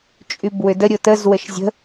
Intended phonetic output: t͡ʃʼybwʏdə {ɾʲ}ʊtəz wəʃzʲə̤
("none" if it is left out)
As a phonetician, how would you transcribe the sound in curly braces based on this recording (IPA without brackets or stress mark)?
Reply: ɾʲ